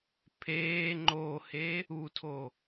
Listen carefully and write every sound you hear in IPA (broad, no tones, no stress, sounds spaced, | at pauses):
pʰ eː ŋ͡ǃ o h e | u tʰ o